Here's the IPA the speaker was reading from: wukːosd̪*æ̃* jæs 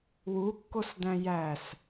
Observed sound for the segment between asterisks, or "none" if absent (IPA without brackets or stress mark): æ̃